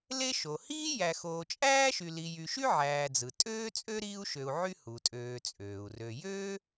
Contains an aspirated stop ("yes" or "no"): no